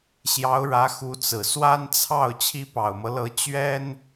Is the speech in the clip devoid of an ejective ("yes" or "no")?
yes